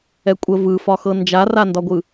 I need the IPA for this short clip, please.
ɛ kʷʼ ə v ɯ f ɒ x ɤ n d͡ʒ a r a n d ɒ ɡʷ ɯ

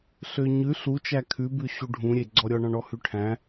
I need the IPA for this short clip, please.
ɬ ø ɲ ʉ ɬ u t͡ʃ æ kʰ ʉ b ʉ ɕ u ɖʱ ũ ɾʲ e ɡ͡ǀ ɔ ɾʲ ɔ ɳ ɔ̃ ɳ ɔ h ʉ ʈʰ æ̃

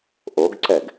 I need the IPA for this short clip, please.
ʔ o ɡ ǀ ɛ ɡ

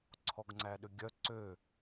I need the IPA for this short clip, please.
ǀʰ ɔ ɡ ŋ͡ǀ æ ɗ ø ɡʲ œ ǀ ø

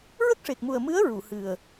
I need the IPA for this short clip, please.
ɹ ə˦˥ k̚ ʂ e˨˩ k̚ m u˨˩ ə̯ m ɨ˧˥ ə̯ ɹ u˨˩˨ h ɨ˨˩ ə̯

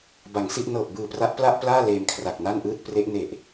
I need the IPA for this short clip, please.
b a˩˦ ŋ s i˥˩ ʔ n ɤː˨˩ p̚ b ɯː˨˩ p r a˦˥ ʔ p l a˥˩ ʔ p l aː˥˩ l eː˧ m kʰ r a˨˩ k̚ n a˥˩ n ʔ ɯː˥˩ t̚ p r e˦˥ ʔ n e˨˩ ʔ

